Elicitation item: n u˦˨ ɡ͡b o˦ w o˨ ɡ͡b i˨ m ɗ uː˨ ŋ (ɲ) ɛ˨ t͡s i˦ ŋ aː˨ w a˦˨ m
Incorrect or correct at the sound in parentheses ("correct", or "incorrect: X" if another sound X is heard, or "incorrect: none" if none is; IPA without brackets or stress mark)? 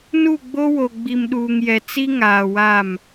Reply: incorrect: j